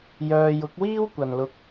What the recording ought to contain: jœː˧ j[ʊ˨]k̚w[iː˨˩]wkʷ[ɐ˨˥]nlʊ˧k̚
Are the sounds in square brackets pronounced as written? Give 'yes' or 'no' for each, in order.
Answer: no, no, no

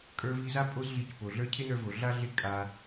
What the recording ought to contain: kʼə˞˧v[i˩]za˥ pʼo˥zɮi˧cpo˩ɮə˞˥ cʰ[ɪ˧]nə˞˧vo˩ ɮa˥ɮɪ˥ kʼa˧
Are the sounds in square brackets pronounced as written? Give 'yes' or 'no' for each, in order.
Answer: no, no

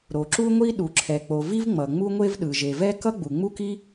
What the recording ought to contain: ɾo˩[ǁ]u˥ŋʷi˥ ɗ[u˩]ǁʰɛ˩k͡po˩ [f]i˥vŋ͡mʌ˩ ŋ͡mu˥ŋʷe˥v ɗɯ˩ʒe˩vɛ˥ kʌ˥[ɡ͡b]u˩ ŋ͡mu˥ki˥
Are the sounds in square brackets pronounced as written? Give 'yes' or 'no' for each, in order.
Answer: yes, yes, no, yes

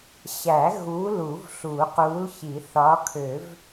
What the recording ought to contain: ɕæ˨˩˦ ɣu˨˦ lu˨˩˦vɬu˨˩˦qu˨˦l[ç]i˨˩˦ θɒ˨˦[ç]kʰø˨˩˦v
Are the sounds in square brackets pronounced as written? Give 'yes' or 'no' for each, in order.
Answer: yes, no

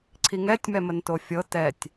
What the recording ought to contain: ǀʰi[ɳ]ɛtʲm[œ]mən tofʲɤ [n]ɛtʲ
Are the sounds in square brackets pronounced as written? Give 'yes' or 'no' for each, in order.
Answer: no, no, no

